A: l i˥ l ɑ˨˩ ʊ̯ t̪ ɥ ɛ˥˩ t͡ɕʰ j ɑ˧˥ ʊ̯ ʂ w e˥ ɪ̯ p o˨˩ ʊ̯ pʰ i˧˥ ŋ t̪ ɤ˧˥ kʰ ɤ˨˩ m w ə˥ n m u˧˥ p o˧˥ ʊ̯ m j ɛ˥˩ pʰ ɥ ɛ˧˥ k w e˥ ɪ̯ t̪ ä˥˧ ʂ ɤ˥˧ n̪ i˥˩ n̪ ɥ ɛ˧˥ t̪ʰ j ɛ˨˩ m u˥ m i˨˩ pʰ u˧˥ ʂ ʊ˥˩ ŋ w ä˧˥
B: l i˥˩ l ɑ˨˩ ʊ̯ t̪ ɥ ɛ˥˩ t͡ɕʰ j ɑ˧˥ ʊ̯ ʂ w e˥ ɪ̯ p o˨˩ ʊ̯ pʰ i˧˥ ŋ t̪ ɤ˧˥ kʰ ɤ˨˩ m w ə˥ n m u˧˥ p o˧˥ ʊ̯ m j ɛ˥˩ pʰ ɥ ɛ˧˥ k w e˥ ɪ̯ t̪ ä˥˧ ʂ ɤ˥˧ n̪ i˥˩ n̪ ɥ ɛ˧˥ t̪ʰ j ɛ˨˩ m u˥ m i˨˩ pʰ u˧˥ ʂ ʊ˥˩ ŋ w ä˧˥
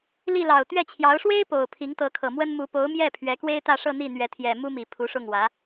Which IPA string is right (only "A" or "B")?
B